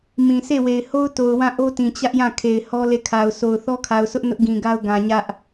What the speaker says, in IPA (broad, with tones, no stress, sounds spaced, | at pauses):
m ĩ˨ sʰ e˦˨ w e˨ ɪ̯ h o˦ ʊ̯ t o˨ ʊ̯ w ã˦˨ ʔ o˦ t ĩ˨ t͡ɕ ä˦ ʔ j ã˦˨ kʰ e˨ ɪ̯ h ɔ˦ l e˦˨ kʰ a˨ ʊ̯ sʰ o˨ ʊ̯ θ ɔ˦ kʰ a˨ ʊ̯ sʰ ʊ˦ ʔ n ʊ˦ ʔ ɡ ĩ˨ ɡ a˦ ʊ̯ ɡ ã˨ ɲ ä˦ ʔ